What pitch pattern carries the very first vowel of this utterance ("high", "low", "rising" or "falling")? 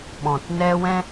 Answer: low